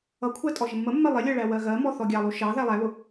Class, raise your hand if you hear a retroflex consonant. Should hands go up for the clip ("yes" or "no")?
yes